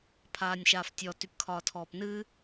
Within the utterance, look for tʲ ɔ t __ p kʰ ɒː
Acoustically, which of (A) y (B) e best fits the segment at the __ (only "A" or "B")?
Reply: A